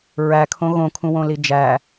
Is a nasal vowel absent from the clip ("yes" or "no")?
no